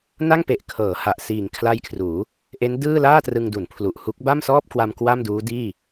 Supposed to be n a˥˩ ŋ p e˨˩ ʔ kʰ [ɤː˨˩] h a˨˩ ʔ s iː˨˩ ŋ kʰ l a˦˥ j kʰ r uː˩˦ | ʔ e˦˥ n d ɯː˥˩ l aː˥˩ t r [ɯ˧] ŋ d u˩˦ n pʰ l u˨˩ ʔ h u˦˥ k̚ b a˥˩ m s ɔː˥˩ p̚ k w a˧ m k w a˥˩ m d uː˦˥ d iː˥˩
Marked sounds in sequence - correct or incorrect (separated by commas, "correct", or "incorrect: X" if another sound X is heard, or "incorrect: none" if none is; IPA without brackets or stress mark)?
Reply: incorrect: ɤː˩˦, correct